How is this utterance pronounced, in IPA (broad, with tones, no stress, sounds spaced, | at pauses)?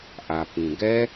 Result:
ʔ a˩ p ĩ˩ ɡ ɛ˦˥